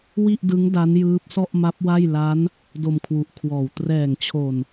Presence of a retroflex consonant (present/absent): absent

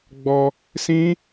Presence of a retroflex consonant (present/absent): absent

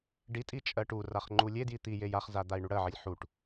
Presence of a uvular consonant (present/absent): present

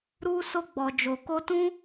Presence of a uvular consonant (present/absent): absent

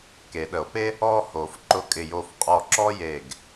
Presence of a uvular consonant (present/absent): present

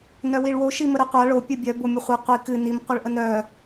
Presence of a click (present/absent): absent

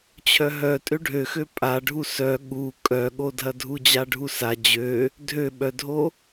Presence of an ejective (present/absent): present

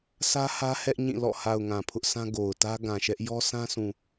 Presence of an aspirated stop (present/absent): present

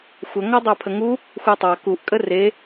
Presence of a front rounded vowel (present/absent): absent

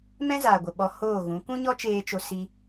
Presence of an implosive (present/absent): present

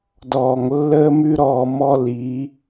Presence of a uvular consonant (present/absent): absent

